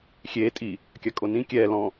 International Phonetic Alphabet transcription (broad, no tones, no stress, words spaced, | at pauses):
xʲeː tʼi | kʲakʼonĩ kʲɛː lɔ̃